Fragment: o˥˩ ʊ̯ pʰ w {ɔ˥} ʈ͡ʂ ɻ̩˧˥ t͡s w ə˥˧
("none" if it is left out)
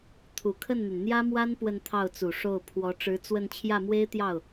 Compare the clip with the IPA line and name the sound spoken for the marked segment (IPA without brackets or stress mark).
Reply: ɔ˧˥